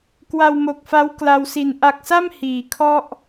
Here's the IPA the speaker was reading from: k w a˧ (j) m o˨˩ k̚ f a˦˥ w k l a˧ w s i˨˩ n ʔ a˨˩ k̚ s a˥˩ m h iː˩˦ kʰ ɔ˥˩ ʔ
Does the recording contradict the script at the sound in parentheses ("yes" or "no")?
yes